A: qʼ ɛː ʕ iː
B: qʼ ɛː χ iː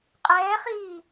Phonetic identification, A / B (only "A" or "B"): B